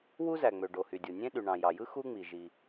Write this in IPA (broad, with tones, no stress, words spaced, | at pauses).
wu˥zæ˩ŋ͡mø˩ ɖo˩hy˩dʲo˩nʲẽ˥ ɗy˩ɳɑ̃˩jɑ˩jɯ˥ xu˥ŋ͡mi˩ ʒi˩